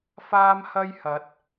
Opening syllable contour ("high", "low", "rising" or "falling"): high